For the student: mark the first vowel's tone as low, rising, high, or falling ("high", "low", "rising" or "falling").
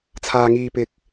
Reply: low